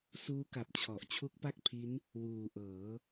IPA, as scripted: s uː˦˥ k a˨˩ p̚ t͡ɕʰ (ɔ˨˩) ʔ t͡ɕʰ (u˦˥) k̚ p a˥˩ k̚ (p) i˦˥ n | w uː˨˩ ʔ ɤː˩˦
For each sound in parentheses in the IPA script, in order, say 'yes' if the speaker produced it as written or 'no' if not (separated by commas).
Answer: yes, yes, no